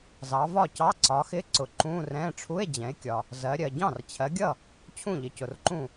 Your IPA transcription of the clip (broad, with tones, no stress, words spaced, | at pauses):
zɑ˨˦vɒ˥˩cɑ˧˥˧ ǀɒ˨˦xɪ˧˥˧ǀʊ˨˦ ǃũ˧˥˧rɛ̃˧˥˧ ʈ͡ʂʰu˧˥˧e̯d͡ʑɛ̃˨˦e̯kʲɒ˨ | zɜ˨˦ɾʲɜ˨ ɟɑ̃˥˩r t͡ɕʰɜ˨˦ɡʲʌ˥˩ | t͡ɕʰũ˥˩ʎɪ˨˦ cʊ˨rǃũ˥˩